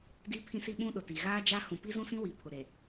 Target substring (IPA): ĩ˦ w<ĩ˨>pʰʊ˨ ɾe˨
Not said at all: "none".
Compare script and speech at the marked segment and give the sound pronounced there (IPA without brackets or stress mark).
i˨